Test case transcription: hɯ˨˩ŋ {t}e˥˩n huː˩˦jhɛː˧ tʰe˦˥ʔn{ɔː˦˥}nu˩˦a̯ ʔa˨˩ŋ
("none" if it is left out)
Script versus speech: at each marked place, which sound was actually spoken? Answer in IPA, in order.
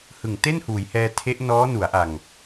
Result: t, ɔː˦˥

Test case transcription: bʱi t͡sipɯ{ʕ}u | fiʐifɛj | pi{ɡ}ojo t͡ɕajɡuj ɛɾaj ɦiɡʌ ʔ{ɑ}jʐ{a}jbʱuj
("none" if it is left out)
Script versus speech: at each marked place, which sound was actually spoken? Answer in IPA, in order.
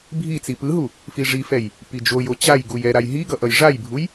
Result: ɦ, d͡ʒ, ʌ, a

